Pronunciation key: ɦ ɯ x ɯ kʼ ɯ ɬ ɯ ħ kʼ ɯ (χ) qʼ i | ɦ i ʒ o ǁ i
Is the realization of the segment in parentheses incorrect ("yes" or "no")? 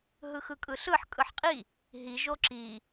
yes